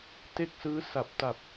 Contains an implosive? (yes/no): no